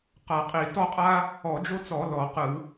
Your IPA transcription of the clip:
q a˧˩˧ qʼ i˧˩˧ t ɔ˥ qʼ a˥ | ɔ˧˩˧ d͡ʒ o˥ t͡s ɔ˧˩˧ l ɔ˧˩˧ q ɯ˧˩˧

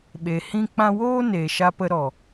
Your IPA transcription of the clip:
ɓ e˨ h ĩ˦ k͡p ã˦ w oː˦ n eː˨ ʃ a˧ p ə˧ ɾ ɔ˨

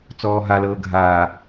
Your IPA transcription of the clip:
t͡s ɔː ɦ a l ɤː ɡʱ aː

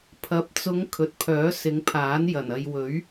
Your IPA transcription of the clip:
pʰ ɐ˨ p̚ t͡s ʊ˨˧ ŋ kʰ ɵ˨ t̚ pʰ œː˨˥ s ɪ˨˧ ŋ pʰ aː˨˥ n j ɐ˨˩ n ɐ˨ j w ɵ˨˥ ɥ

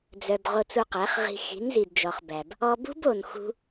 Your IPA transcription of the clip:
d͡z œ˨ b ʁ o˧ t͡s u˧ q æ˨˦ χ ʁ i̤˧ x i̤˨˦ n z i˨ d d͡ʒ ɔ˨ χ b æ˨ b | ɔ˧ b ṳ˦ b o˨ n x ṳ˧

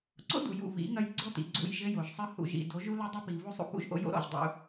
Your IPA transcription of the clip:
ǀ o̰˦ d u˨ j ṵ˦˨ v ḭ˨˦ ŋ ɐ˦ j ɡ͡ǀ ɔ˦ t ḭ˨ ɡ͡ǀ ṵ˦˨ j ʒ ɘ˦ j o˨ ʒ sˤ ɘ˦ h ṵ˨ ʒ ḭ˨ d o˨˦ ʒ u˦ l ɘ˦ dˤ ɘ˦ p i˨ v u˦ sˤ ṵ˦ p ṵ˦ ʒ ʔ o̰˦ j o̰˦ ɾ ɔ̰˨ ʒ dˤ ṵ˦

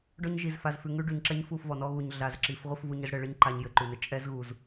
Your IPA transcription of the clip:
ɖ ɔ˦ ɲ ʒ i˨ z f a˨ z f ʉ˨ ŋ ʉ˦ ɖ ʉ˨ ɲ ǁ ɛ˦ ɲ f u˦˨ f v ɔ˨ n ɔ˦ ɣ u˨ ɲ ɮ a˨ z ǁ i˨ f ʁʷ ɘ˦ f v u˦ ɲ ɘ˦ z ɽ ɘ˨ ɭ ɘ˦ ɲ ǃ a˨ ɲ j ɘ˨ ǃ ʉ˨ n ɘ˦ t͡ʃʼ ɛ˦ z ɣ u˨ z

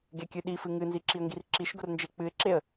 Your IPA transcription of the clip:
ɡ e kʲ ɨ ɗ i f ɨ ŋ ɨ n z i ǁ i ə̯ ŋ ɡ i r ǁ i ʃ ɡ ʊ r n d͡ʒ e k͡p ɨ ɪ̯ ǁ e ə̯

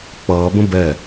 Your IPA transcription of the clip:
k͡p ʌː b ə̃ b ɛ

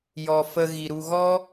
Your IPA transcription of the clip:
j ɔ˨ f ə˧ ɣ i˨ ɾ u˧ ɣ ɔ˦

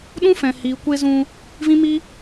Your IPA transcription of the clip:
ɗ ũ˦ f ɛ̃˨ h iː˨ kʷ e˧ z ũ˧ | v ĩ˦ m i˦

